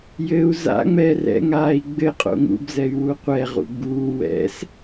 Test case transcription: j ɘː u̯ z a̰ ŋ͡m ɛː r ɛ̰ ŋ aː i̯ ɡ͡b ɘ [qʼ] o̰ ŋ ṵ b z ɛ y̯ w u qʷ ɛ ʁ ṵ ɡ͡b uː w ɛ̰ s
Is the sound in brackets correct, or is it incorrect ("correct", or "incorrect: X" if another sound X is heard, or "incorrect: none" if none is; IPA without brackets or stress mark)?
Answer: correct